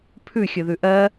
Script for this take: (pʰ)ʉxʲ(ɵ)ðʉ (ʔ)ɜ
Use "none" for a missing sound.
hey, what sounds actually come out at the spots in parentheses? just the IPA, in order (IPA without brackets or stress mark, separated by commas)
pʰ, ɵ, ʔ